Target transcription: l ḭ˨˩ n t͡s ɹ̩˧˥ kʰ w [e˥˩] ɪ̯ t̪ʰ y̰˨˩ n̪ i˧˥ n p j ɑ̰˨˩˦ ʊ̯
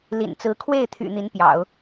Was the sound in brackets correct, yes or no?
yes